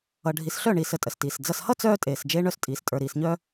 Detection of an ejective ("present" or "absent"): present